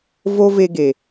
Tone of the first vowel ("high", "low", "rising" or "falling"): high